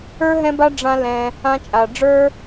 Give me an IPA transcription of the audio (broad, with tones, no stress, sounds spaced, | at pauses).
ə˞˦ ɦ ɛ̃˦ b a˦ ɖ͡ʐ ã˦ l ɛ̃˧ | ã˧ t͡ʃʼ a˨ ɖ͡ʐ ə˞˦